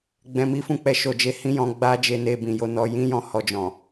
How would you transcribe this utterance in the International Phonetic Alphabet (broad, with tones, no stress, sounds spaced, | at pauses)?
ɡ͡b ɛ̃˧ m i˦ f ũ˦˨ k͡p ɛ˧ ʃ o˨ d͡ʒ e˧ h ĩ˦ j ɔ̃˧ ɡ͡b a˦ d͡ʒ e˧ n e˧ b ĩ˨ j o˨˦ n ɔ˧ j ĩ˦ j ɔ̃˧ h ɔ˧ d͡ʒ ɔ̃˨